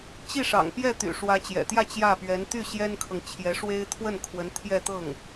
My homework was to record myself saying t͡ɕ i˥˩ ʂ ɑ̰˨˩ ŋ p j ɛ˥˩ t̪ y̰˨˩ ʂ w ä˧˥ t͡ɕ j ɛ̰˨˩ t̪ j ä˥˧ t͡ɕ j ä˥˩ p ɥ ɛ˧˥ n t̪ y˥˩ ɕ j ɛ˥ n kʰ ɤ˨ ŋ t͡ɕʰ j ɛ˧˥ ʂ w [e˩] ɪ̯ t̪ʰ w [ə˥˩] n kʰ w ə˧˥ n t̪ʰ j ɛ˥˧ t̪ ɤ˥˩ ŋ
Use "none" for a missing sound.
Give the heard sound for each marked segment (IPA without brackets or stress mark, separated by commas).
e˥, ə˥˩